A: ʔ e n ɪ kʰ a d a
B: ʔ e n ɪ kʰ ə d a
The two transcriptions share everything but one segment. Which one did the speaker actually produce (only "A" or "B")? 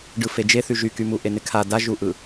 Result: A